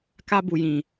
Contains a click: no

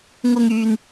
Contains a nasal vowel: no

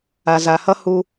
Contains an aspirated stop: no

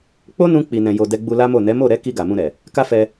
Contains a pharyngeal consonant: no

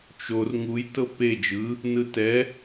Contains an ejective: no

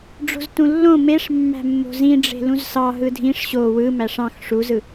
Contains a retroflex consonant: yes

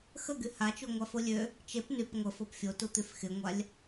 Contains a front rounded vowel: yes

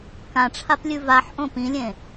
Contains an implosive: no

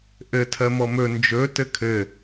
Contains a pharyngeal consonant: no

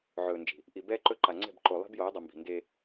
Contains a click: yes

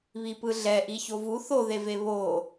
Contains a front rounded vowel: no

